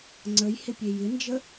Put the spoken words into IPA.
ŋ͡ǀəj hɪpʲejɪnd͡ʒə

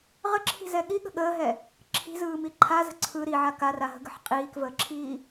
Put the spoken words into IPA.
ʁəǁʰi̤zɛ ɠiɠə̤ ɠəːɦɛ | ǁʰi̤zɯːmi ǃʰazə̤ ǀʰɯ ɾiʕa karaɦə̤ɡə̤ħ qʼiːkvəːǁʰiː

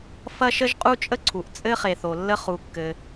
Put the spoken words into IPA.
fɐ˥ʃə˥ʒqʼu˥t͡ʃʼə˥ ǀʰu˩ʔt͡sʼɘ˥χe˩ θo˩lːə˥ χu˩kːɘ˩

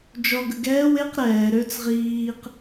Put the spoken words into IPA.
d͡ʒɔɡə ɡɛːw eq ɾɛː ɾøt͡s ʁiːq

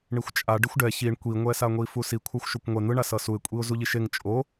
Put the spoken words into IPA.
ɳixʷt͡ʃʼa ɖixʷɖɛ çiɳ kʷiŋʷɛsaŋʷi fusi kʷʰaxʷʃokʷŋʷɛ n̪ɯɳa sʌsuɪ̯kʷʼiʊ̯ zuʎiʃeŋ t͡ʃʼo

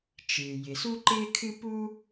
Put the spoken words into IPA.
t͡ʃɨː˩ jɪ˩su˥ǃɪː˥kʰɨ˥ puː˥

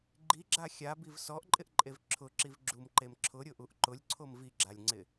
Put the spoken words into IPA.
ɡ͡ǃiɡ͡ǁa xʲabiv sɔʔǃʼɪʔǃʼev ǁʰʊǁiv ɡ͡ǁumǃem ǁʰʊɾʲʊʔuʔ ǃʊlʲǀʰom viɡ͡ǁalʲŋ͡ǀɪ

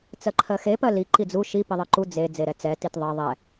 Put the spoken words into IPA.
t͡sɜǃʰɜxe pɜli ǃid͡zu ʃi piðˤɜǃu d͡ze d͡zeɾɛt͡sɛ titðˤɛ ðˤɛ

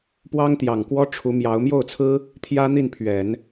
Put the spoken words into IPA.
pwɑ˥ŋt̪jɑ˨˩ŋkwɔ˥ ʈ͡ʂʰu˧˥mjɑ˧˥ʊ̯ mjo˥˩ʊ̯t͡sʰɹ̩˥ | t̪ʰjä˥n̪i˥˩npʰɥɛ˨˩˦n

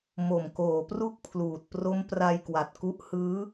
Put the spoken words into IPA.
mo˨˩mkoː˩˦pru˦˥k̚ pʰluː˨˩t̚ pro˦˥mpra˧jkwa˨˩t̚ku˦˥ʔ hɯː˦˥

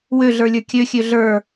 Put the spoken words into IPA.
wøɮə˞lʲə˞ kʲøxʲø ɮə˞

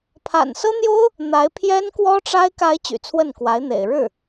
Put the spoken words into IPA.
pʰa̰˨˩nsɤ˥n̪jo˥ʊ̯ | n̪a˧˥ɪ̯ pʰjɛ˥nkwɔ˥ʈ͡ʂa˥ɪ̯ ka˧˥ɪ̯ t͡ɕy̰˨˩t͡sʰwə˥˩nkwa˧˥ɪ̯n̪ḛ˨˩ɪ̯ ɻɻ̩˥˩

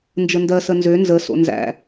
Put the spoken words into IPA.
nd͡ʒəndɜsə nzø nzəso̰ nzæ̰

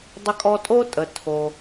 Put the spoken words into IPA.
dˤə˧kʼɔ˧tʼo˥tʼə˩ tʰo˩

